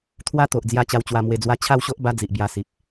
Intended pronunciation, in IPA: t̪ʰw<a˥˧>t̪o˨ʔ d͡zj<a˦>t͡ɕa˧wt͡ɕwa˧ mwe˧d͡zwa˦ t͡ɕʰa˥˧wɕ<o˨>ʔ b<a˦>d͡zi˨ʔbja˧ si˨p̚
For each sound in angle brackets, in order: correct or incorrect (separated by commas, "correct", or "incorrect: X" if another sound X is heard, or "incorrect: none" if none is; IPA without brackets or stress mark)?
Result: incorrect: a˦, incorrect: a˧, incorrect: o˦, correct